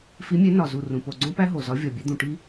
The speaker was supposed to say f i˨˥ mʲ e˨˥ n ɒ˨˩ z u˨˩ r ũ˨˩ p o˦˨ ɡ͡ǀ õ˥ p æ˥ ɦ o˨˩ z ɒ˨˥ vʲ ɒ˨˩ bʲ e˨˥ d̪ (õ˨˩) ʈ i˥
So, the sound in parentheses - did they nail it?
no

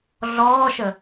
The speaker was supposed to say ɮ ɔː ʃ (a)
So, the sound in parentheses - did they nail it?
no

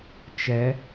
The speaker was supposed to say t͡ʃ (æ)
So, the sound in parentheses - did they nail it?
no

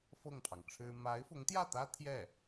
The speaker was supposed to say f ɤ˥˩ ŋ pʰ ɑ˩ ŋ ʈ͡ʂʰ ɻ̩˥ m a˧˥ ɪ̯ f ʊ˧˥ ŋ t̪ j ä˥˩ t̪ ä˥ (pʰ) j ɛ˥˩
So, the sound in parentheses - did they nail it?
no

